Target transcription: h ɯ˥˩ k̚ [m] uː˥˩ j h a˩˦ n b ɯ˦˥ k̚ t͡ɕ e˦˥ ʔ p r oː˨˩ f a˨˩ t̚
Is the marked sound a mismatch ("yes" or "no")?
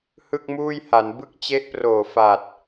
no